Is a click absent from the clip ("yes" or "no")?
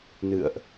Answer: yes